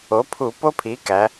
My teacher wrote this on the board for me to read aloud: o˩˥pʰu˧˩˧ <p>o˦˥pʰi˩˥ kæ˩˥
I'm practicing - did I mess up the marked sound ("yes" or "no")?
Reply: no